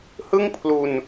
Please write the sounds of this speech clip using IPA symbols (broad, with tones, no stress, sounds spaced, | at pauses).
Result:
h ɯ˥˩ ŋ pʰ l u˧ n